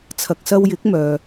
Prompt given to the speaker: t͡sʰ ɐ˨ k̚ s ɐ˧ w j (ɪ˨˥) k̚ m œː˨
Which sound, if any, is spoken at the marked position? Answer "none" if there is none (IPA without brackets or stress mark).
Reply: ɪ˨˥